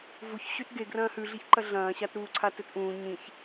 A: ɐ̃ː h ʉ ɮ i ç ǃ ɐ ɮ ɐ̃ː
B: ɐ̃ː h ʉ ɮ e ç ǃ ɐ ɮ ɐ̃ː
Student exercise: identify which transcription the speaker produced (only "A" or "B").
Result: A